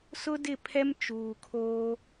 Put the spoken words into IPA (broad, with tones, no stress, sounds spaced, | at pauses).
s ʊ˦ d ɪ˦˨ pʰ ɛ˦ m t͡ʃ uː˨ kʰ oː˦